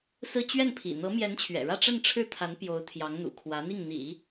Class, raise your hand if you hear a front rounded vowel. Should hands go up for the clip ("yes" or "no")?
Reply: no